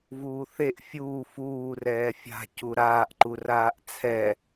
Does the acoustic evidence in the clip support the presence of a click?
yes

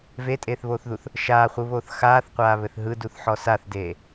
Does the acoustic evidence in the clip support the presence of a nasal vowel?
no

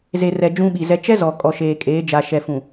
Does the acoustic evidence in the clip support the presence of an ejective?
yes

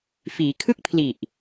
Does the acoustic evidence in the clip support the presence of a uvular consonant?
no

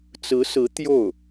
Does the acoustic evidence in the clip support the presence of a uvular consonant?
no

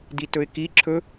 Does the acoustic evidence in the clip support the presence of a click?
yes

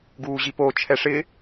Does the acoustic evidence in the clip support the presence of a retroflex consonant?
yes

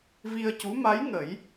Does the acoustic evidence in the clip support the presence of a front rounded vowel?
no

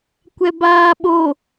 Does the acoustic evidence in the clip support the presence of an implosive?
yes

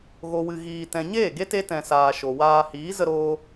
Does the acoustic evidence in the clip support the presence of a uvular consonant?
no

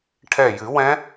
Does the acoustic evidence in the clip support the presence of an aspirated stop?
yes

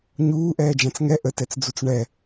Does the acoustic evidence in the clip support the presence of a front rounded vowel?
no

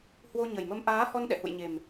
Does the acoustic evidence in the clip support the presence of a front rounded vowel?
no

